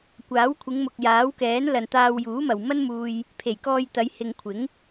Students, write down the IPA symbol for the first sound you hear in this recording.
kʷ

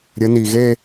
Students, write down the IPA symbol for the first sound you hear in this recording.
ɾʲ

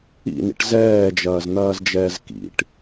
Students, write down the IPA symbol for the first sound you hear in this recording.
ḭ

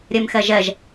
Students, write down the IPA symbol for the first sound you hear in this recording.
ɾʲ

